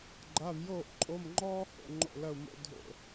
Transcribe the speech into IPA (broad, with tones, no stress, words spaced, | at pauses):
ɡ͡ǃa˧˥˧vjoː˥˨ʔǃʼo˧˥˧mŋ͡ǃɔː˥ ho̰˧˥˧ŋ͡ǃo̰˥˨lɐ˥˨u̯ mo̰˥ dʱo̰˥˨